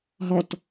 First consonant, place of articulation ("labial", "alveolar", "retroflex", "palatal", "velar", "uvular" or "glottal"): glottal